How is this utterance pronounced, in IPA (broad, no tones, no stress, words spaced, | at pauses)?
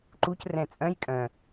ǃucrɛ̃ t͡sʼœ̃j kʼœ̃